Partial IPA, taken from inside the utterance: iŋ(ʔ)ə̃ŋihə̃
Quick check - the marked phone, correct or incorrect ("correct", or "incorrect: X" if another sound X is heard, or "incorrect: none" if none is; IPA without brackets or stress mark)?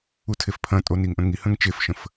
correct